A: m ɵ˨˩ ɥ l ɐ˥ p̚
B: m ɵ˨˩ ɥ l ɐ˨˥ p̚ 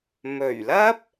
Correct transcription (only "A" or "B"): A